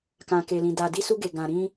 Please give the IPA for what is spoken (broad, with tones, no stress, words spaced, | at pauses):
kã˨ke˨lĩ˨ da˨di˧ su˧ɡe˨ɡã˨ ɾĩ˧